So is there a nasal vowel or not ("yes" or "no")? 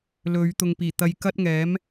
no